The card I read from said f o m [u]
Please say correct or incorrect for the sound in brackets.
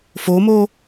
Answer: incorrect